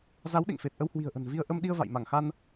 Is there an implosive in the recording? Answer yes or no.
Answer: yes